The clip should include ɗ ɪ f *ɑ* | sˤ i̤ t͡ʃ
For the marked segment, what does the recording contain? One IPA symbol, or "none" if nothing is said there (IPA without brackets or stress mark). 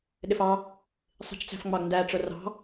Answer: ɑ